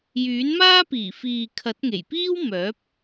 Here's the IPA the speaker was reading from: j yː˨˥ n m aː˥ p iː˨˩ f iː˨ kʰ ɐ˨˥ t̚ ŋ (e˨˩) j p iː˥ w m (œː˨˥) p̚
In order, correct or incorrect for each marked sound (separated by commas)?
correct, correct